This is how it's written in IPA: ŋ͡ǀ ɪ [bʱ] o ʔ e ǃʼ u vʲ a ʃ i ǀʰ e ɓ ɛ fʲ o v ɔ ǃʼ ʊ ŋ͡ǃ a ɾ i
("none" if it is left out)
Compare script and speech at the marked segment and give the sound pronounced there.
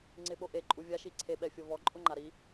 ɓ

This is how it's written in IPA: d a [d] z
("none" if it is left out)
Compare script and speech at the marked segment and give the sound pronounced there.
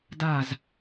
none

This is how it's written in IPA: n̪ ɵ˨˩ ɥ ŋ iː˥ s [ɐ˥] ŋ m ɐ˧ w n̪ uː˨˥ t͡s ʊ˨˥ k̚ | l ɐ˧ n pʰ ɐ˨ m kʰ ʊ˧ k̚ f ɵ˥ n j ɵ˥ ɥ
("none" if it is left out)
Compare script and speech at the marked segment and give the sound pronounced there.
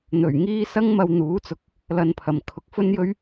ɐ˥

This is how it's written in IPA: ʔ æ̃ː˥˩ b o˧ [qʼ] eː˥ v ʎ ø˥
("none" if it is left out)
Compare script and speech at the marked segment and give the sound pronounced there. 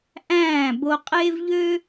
qʼ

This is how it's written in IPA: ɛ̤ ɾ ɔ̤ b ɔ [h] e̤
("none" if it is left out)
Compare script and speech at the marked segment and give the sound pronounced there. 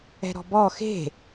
x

